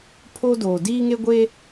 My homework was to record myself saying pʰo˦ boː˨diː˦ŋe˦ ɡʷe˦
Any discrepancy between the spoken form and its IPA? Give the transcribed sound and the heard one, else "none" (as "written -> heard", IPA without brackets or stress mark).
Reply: b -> d